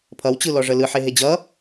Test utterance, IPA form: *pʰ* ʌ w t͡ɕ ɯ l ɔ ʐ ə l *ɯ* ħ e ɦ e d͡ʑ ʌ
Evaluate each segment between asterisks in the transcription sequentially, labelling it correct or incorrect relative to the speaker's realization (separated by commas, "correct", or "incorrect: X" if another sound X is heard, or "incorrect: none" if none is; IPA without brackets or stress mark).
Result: correct, correct